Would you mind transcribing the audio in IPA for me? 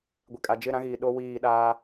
ɡʷ i˨ kʼ a˨ d͡ʒ ɪ˦˨ ɾ ã˦ ɣ iː˨ ɗ o˦ w iː˦˨ ɗ aː˦

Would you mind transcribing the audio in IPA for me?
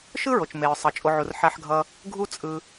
ʃ ɯ˥ ɹ o˩ t͡ʃ m e˩ ɹ sˤ ʌ˩ t͡ʃʼ o˨ ʕ u˩ r ħ a˨ ħ ɡʱ ʌ˨ | ɡʱ u˦ t͡sʼ ɯ˨

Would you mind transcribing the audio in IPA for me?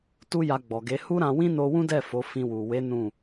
t u˦ j a˧ ɡ͡b ɔ˨ ɡ e˨˦ h u˦ ɾ ã˧ w ĩ˦ n o˦ w ũ˦ d ɛ˦˨ f o˨˦ f ĩ˧ w u˨ w e˨˦ n ũ˦˨

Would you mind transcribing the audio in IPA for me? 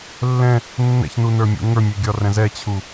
lː ɛ̃ | nː ɛ̰ ç n u n ə˞ mʲ ṵ ŋ ə˞ mʲ ø ɡʲ ɒ r ɛ̃ z ɛ t͡ɕʰ u

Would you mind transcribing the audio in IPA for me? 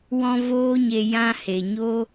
w ɔ̃˧ v oː˦ ɲ e˧ j ã˧ h e˨ ɲ o˦

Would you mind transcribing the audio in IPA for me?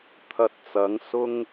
t̪ʰ ɐ˧ t̚ t͡s ɐ˨˥ ŋ s ʊ˥ ŋ

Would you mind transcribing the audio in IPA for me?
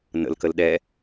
n ə̰ l k ə l ɗ ɛ

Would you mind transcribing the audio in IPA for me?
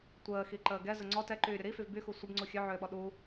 tʷ əː x i ǃ əː ɡ ɛ z ə ŋ͡ǀ ɔ t ɛ ǃ yː ɾʲ u ɾ i f y v b y x u sʷ ə b ŋ͡ǀ u xʲ œ ʕ øː ɓ ɔ ɗ u

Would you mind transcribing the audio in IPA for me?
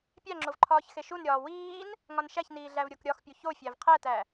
pʲ æ ŋ͡ǁ o v ǃʰ ɒː ç x e ʃ u n ɾʲ ɒː w iː n | ŋ ɒ n ʃ æ ç n iː ɮ æ v ɾʲ o k ɾʲ ɒ x pʲ u ç o fʲ æ v qʰ æ t æ

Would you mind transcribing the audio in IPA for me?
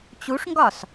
t͡ɕ u ʂ ŋ ɡ ɒ s

